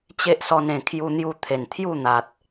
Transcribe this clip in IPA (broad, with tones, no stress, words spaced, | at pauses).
t͡ɕe˦ʔsɔ˧nẽ˨˩ kʰju˧n̪ju˧t̪ʰe˨˩n t̪ʰju˥˧n̪a˨t̚